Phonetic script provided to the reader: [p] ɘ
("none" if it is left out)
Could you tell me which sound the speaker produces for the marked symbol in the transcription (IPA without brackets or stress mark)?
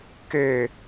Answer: k